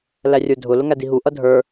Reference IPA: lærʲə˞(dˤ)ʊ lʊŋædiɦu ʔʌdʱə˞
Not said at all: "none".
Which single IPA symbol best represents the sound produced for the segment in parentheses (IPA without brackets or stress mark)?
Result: dʱ